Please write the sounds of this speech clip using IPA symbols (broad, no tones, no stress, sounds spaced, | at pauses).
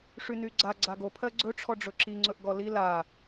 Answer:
ʂ y n y ɡ͡ǀ a ɡ͡ǀ a ɡ o pʰ ɜ ɡ͡ǀ ɵ ʈ͡ʂʰ ɔ ɖ͡ʐ ɵ ǁ i ŋ͡ǀ ɵ ʔ ɡ ɔ l i l a